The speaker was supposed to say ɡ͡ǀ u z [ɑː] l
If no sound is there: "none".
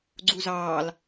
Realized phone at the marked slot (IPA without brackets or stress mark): ɑː